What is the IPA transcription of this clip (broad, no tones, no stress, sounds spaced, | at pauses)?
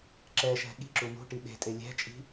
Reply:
ǁ ɛ ʃ ɛ̤ ɠ i̤ ǁ u n ṳ ʈ i ɓ e̤ tʼ e lʲ ɛ̤ t͡ʃʼ i̤